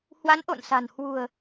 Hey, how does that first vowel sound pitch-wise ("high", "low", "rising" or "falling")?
rising